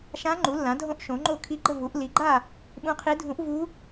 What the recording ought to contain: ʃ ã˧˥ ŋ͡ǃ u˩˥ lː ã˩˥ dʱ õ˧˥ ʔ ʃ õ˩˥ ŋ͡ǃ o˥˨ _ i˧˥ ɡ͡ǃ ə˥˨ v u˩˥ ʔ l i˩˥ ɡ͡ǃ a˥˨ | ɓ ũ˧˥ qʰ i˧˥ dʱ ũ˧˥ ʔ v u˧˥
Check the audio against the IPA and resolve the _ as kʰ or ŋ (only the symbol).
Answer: kʰ